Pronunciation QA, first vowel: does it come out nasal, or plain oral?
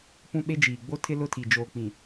nasal